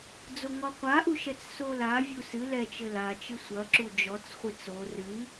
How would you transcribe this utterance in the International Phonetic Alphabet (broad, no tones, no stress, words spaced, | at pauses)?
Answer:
d͡zoŋɔqʷaʔu ʃɛt͡ssolavʲu sɨ lɛt͡ʃɘ lat͡ʃɨ sʷɐǁu d͡ʒɔt͡sχʷɨt͡s o rɨ